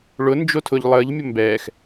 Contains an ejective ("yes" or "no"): no